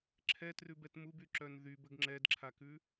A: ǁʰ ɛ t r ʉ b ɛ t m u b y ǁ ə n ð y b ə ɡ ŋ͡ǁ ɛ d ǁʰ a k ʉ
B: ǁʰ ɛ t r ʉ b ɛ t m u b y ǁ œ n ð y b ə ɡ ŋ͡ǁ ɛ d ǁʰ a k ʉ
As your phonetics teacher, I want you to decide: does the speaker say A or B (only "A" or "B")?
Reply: B